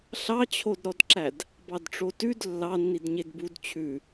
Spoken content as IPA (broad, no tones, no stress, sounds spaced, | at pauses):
ɬ ɑ t͡ɕʰ o d ɾ ɔ d ǁ æ d | b ɑ d ʈ͡ʂ o t ʉ d lː ɑ nː i d ɲ e d b u d t͡ɕʰ ʉ